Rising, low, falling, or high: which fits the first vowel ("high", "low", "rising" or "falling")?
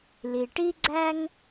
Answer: low